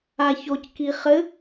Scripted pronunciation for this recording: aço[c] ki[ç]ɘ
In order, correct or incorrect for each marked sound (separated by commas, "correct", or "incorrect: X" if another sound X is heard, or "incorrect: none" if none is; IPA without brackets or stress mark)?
correct, incorrect: χ